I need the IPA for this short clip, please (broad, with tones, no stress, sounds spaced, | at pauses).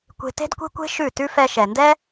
kʷ e̤˧ t e̤˦ d kʷ e̤˦ kʷ e̤˦ ʃ ʉ˦˨ t ʉ˦ f ɛ˧ ʃ ɛ˨ n d ɛ˦